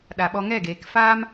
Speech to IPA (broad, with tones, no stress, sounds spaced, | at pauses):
ɗ a˨ ɓ ɔ˧ ŋ ɛ˦˨ ɡ eː˨ k f aː˦ m